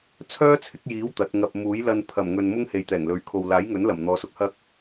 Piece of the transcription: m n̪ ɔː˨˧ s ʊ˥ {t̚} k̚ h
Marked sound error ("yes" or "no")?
yes